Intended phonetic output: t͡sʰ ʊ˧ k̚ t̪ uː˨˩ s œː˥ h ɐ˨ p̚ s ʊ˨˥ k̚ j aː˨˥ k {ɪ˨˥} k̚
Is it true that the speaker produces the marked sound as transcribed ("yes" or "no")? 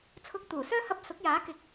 yes